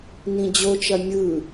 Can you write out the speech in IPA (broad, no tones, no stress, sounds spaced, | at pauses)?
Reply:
n ĩ d͡ʑ o t͡ʃ ɐ mʲ ɯ